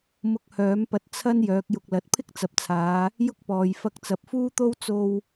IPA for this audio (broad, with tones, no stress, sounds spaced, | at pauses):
m ʊ˧ k̚ h œː˨˥ m p ɐ˧ t̚ t͡sʰ ɐ˥ n j œː˨˥ k̚ j ʊ˧ k̚ l ɐ˨˥ t̚ pʰ ɪ˥ k̚ t͡s ɐ˨ p̚ t͡sʰ aː˨˧ | j ʊ˥ k̚ p ɔː˨ j f ɐ˧ k̚ t͡s ɐ˨ p̚ f uː˥ t̪ o˥ w t͡s o˧ w